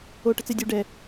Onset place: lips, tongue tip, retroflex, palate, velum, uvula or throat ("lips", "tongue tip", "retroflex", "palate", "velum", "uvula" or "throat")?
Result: retroflex